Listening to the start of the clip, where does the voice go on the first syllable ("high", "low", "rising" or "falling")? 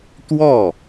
falling